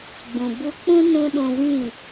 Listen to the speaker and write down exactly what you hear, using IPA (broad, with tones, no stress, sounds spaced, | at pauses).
ɡ͡b ũ˨ b u˧ k͡p ũ˦ n ũ˦ ɗ ũ˧ v ĩ˦˨